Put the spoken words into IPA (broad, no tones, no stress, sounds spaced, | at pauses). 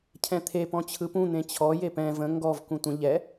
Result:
cʰ ɛ̃ t̪ʰ e p ɔ̃ t͡ɕʰ ɯ p ũ n̪ ẽ t͡ɕʰ ɔ j e p ɛ̃ v ə̃ ŋ ɡ ɔ v k ũ tʷ ə̃ ʎ ɛ